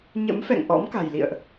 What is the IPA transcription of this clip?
ɲ ə̰˧˥ m f ɛ̰˧˨ ŋ ʔ ɔ̰˧˥ m k a̤˨˩ j l ḭ˧˨ ə̯ ʔ

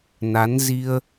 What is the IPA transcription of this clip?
n a˨˦ n z i˧ ə̯

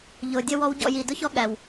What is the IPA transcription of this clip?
ʎ ʊː˨ dʲ ə˦ w ɔ˦ w ɟ ɔ̰˦˨ j iː˨ d ʊ˦ ç ɔ˦ ɠ æ˨ w

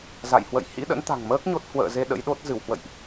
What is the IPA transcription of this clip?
z a̰˧˨ j h w ə̰˧˨ j h ḭ˧˥ ɗ ə̰˧˥ n t̪ a̤˨˩ ŋ m əː˦˥ k̚ ɲ o˦˥ t̚ h w ə̰ː˧˨ z e˧ ɗ ə̰˧˥ j ɗ o˦˥ t̚ z ɨ˧˩ w h w ə̰˧˨ j ʔ

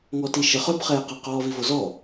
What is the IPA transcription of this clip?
ŋ ɔ t i ʃ ə χ œ b χ ɛː q a q ɔː v i v o z ɔ

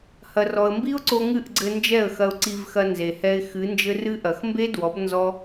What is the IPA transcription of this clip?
h ɐ˨ r ɔ˨ ə̯ m b i˦ ʊ̯ ǀ o˧ ŋ ɨ˦˨ ʔ ɡ͡ǀ ɘ˧ n d͡ʒ ɛ˦˨ ə̯ x ɐ˧ ʊ̯ ǀ i˧ v x ɐ˧ n z e˨ h ɛ˧ ɪ̯ x ɨ˨˦ n d͡ʒ ɘ˦ r ɨ˦ ʔ ɐ˨ x m b e˦ d w ɔ˨˦ b n z ɔ˦

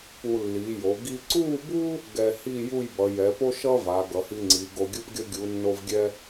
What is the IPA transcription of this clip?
p u˧ lː i˩˧ j o˩˧ ɡ i˧ ǀ u˥˧ b u˥ | ɡ ɛ˧ h i˥˧ j u˥˧ j b ʌ˩˧ j ɛ˩˧ p o˥ ʃ ʌ˥ v a˩˧ ɡ ʌ˩˧ h i˧ ŋ͡ǀ i˩˧ ɡ o˧ ɡʲ ɯ˥ p ɡʲ ʌ˥ ɡʲ u˩˧ nː o˧ v ɡʲ ɛ˧

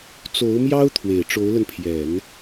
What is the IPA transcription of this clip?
t͡s o˧˥ ʊ̯ m j ɑ˥ ʊ̯ t̪ʰ w e˨˩ ɪ̯ ʈ͡ʂ o˧˥ ʊ̯ l ə˧ n pʰ j ɛ˨˩˦ n

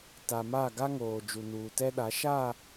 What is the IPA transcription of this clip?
t a˨ m a˦˨ ɡ a˦ ŋ oː˨ d͡ʒ u˨ n uː˨ t ɛ˦ ɗ a˨˦ ʃ a˦˨

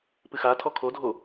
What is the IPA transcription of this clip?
p ɨ x a tʰ ɔ kʰ o dʱ o

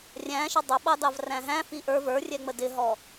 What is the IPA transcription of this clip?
rʲ æ̃ ʃ ə dˤ ʊ ɓ ɑ d ɑ v r æ̃ ɦ æ̃ f i ʔ ə˞ v ə˞ rʲ ɛ ŋ͡m ə d ɪ ɦ ɔ

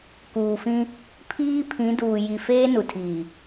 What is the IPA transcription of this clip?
k uː˨ f ĩ˦ | pʰ iː˦ pʰ ĩ˨˦ d uː˨ j i˨ f eː˦ n u˨ tʰ iː˨

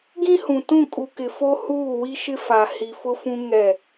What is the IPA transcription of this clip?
ɡ ĩ˦ h ũ˨ t ũ˦˨ kʼ u˨ k ɪ˨ f o˦ h uː˦˨ w i˦ ʃ ɪ˦ f a˨ h i˨ f ʊ˦ f ũ˦ ŋ ɛ˦˨

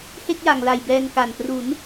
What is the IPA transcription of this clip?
h e˥˩ k̚ j a˨˩ ŋ l a˨˩ j b ɛː˧ ŋ k a˨˩ n p r u˩˦ n

